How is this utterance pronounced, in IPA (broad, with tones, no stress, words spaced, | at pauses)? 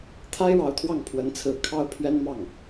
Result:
t̪ʰa˥ɪ̯ ɻɑ˧˥ʊ̯t̪ʰwɑ˥˩ŋ pʰwə˧˥nt͡sʰɹ̩˧˥ kʰɑ˥ʊ̯pʰɥɛ˥nmɑ˥˩ŋ